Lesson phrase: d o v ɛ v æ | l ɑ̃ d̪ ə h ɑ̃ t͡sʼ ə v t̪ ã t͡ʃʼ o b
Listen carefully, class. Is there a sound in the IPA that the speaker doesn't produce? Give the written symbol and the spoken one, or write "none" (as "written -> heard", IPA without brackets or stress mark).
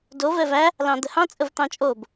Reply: ã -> ɑ̃